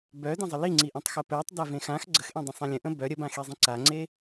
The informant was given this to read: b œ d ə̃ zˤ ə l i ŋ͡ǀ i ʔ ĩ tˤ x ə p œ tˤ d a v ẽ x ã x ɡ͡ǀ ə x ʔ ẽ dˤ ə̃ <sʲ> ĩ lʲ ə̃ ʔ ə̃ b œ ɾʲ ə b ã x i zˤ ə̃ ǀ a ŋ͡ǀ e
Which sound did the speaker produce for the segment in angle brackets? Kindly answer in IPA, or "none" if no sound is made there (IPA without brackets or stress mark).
sˤ